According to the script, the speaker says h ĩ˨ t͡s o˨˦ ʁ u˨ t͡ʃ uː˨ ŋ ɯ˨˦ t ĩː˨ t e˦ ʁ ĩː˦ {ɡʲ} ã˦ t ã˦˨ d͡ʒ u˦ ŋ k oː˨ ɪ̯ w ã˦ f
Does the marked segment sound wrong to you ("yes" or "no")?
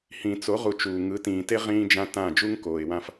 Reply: yes